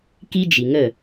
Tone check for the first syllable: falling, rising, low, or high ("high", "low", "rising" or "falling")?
high